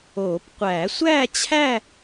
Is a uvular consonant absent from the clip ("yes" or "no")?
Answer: no